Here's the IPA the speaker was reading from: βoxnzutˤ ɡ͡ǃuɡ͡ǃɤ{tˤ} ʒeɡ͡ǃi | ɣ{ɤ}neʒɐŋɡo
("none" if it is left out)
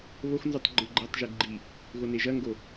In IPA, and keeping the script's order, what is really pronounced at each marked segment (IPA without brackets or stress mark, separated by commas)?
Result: tˤ, o